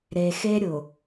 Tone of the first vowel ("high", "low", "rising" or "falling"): low